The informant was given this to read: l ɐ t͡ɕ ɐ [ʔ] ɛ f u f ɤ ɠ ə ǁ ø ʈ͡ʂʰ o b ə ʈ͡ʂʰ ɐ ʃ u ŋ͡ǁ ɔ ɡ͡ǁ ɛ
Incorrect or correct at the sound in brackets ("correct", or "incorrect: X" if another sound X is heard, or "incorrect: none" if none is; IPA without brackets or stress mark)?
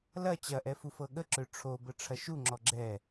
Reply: correct